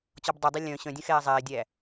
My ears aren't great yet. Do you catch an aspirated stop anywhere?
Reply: no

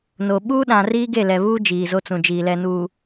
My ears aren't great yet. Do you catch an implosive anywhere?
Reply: yes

